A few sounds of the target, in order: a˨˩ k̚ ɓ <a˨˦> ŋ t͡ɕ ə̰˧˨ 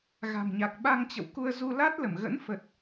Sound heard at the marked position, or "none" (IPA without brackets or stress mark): a˧